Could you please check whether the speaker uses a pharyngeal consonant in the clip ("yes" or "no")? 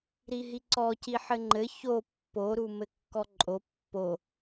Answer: yes